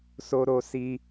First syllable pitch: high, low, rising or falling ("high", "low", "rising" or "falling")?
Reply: high